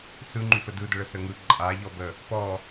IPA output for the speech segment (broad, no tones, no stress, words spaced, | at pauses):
sɯŋ͡ǃy fədɯdəɭə səŋɯ ǃʼa ʎɔbə | pɔ